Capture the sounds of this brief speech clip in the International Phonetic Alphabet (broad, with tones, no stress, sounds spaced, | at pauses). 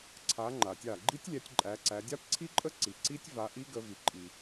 ǀʰ a˨˦ ŋ͡ǃ a˩ tʲ a˧˩ ɡ͡ǃ i˦˥ tʲ lʲ æ˨˦ tʲ ǃʼ æ˨˦ ǀ æ˨˦ dʲ a˦˥ p ǀʰ i˦˥ ǃʼ ə˦˥ ǀ i˩ ǀ i˦˥ tʲ v a˨˦ ʔ i˦˥ ɡ ə˨˦ v i˩ ǃʼ i˩